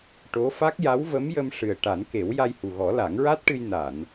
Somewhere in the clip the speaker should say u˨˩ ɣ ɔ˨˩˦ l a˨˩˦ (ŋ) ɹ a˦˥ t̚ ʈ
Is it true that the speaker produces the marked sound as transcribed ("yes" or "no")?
yes